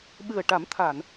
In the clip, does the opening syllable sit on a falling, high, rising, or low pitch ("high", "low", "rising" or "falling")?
low